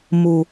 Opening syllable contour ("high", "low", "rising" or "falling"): low